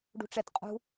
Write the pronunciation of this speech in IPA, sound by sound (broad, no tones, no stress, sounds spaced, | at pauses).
ɖ ṳ ʈ͡ʂ ɛ t qʼ ṳ